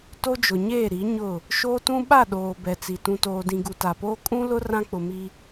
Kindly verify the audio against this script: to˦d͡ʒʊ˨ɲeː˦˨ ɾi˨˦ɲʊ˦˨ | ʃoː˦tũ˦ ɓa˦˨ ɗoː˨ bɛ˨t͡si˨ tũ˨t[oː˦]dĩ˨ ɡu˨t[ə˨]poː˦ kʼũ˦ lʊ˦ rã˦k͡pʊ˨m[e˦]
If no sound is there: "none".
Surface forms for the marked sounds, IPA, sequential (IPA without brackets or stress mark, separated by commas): oː˨, a˨, i˦